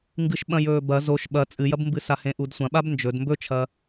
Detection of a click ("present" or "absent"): absent